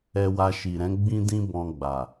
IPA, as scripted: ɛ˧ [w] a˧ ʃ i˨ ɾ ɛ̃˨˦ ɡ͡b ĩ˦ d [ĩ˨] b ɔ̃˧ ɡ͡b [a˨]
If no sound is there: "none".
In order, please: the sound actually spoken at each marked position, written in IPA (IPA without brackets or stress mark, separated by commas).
w, ĩ˦, a˨